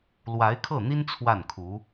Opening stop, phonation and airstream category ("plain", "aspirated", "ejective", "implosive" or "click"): aspirated